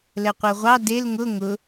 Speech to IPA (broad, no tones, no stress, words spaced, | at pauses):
lɛqʷɜʁʷɑ del ŋʊ ŋʊ